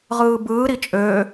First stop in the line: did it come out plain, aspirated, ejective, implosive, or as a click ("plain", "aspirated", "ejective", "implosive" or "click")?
plain